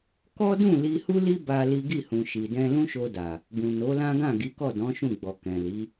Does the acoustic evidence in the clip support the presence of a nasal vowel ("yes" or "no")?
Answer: yes